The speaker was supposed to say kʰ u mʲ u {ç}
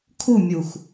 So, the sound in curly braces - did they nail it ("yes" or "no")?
no